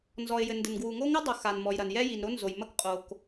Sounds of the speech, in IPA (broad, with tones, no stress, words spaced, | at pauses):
nzɔ˩ɪ̯jɘ˩ndɘ˩n ɡwu˩ŋo˥ŋɨ˥ dˤu˩xa˩n mɔ˩jɾɐ˩n jɛ˥ji˩nɾo˥ nzo˩jmɐ˥k qʼo˩k